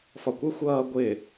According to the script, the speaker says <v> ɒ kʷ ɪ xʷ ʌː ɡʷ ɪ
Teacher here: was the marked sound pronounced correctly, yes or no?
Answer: no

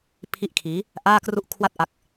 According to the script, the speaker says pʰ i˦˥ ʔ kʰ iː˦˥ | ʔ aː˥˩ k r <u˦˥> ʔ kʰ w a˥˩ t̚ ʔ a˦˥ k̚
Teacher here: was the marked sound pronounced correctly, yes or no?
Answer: no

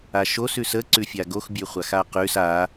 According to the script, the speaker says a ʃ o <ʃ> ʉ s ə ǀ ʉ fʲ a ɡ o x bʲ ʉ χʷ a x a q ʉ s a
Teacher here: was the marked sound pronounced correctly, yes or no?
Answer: no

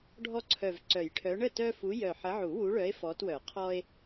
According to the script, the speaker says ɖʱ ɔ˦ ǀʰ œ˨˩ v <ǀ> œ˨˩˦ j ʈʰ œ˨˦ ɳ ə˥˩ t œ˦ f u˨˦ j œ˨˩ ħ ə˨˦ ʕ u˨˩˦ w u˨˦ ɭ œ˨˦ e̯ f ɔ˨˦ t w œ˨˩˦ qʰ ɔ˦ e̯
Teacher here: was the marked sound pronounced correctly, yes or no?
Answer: yes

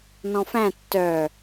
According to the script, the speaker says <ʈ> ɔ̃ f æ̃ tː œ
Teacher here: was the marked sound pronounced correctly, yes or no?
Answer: no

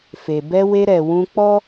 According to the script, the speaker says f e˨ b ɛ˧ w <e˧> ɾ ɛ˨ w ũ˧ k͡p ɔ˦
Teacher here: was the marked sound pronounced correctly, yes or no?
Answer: yes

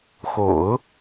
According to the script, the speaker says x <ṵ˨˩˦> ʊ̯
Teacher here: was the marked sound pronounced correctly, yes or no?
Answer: no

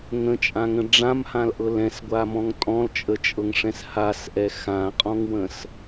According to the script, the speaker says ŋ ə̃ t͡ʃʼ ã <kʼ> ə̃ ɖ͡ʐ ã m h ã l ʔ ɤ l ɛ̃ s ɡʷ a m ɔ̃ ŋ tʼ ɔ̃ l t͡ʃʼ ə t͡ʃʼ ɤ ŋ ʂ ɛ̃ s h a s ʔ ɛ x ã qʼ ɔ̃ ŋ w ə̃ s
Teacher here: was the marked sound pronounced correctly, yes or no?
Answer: no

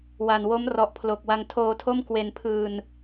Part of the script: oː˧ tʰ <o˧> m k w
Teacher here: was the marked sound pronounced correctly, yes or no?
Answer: no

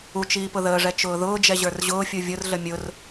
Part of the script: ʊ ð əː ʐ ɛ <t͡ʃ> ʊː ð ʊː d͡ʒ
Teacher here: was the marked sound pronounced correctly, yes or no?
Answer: yes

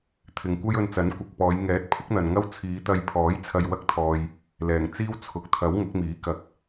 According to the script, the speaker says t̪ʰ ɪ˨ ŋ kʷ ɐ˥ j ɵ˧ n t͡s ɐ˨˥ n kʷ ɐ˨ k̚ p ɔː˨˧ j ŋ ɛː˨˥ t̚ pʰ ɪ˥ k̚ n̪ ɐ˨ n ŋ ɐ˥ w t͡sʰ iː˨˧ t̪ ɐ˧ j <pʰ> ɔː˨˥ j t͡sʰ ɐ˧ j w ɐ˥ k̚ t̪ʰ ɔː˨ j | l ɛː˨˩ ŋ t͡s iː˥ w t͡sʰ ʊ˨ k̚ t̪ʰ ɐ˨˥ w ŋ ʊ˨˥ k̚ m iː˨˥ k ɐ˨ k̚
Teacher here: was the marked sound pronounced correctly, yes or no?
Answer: yes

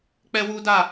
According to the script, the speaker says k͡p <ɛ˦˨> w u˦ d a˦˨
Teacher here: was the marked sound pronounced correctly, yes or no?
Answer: no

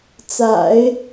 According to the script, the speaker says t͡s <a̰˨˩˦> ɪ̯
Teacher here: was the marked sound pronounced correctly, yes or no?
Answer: yes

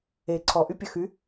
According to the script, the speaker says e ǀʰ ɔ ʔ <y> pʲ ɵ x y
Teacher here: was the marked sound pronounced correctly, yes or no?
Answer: yes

